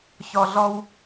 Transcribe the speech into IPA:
ç ɔ˨ ɮ ɔ˧ w

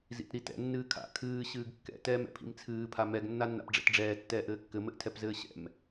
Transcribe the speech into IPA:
z ḭ t ɾ i t ɛ̰ nː ɨː kʰ a̰ kʰ ɨː ɕ ɨː ɡ kː ɛ̰ t ɛː m ɛ̰ pʰ ḭ m t͡sʰ ɨː pʰ a m ɛ ɡ nː a nː a̰ p ɖ͡ʐ ɛ̰ t ɖ͡ʐ ɛː tː ɛː ʔ ɘː kː ɘ m ɘ ʔ tʰ ɛ p z ɘː ɕ ɛ̰ m

